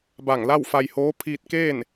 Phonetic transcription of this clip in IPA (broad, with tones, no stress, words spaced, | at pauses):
ba˧˩ŋla˥˨wfa˧jhoː˧˥ pʰiː˧t̚keː˥˨n